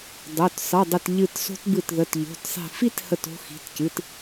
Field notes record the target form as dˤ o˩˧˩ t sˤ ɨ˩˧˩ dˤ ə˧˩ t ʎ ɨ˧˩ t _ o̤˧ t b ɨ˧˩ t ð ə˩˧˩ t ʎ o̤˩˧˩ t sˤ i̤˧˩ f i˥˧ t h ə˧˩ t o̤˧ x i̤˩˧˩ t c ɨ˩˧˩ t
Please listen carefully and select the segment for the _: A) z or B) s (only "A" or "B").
B